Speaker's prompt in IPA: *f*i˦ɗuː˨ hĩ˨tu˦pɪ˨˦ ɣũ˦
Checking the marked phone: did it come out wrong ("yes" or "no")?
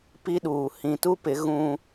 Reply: yes